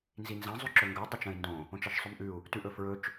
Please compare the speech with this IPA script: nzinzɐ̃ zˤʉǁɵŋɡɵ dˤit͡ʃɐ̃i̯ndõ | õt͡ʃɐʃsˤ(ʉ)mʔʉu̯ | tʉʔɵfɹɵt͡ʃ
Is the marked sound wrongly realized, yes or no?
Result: no